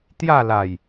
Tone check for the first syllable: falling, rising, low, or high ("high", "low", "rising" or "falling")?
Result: falling